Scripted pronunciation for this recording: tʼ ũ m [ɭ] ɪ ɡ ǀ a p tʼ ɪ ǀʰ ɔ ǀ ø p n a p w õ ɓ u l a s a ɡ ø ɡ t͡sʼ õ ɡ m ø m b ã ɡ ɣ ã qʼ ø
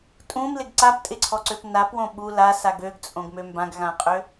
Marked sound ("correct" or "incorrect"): incorrect